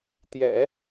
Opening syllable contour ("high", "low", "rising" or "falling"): low